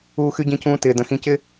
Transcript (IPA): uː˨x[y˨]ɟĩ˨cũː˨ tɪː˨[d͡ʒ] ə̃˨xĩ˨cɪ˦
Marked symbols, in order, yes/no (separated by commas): yes, no